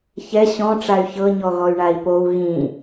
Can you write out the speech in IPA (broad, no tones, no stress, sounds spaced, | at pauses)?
ç ɛ ɕ ɔ̃ ʈ͡ʂ a y̯ ç ɤ ɲ ɔ ɣ ɔ y̯ ɳ a i̯ p o u̯ ɣ ĩ